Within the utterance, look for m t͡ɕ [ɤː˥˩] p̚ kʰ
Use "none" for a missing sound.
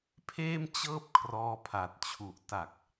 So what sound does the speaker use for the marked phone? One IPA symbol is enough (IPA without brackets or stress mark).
ɤː˥˩